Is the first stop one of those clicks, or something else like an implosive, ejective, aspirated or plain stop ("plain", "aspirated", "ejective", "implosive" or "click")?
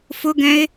plain